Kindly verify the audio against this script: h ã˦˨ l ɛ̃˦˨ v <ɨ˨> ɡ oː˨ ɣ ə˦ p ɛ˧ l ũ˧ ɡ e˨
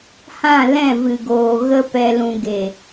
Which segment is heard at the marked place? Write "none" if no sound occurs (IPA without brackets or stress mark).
ɨ˨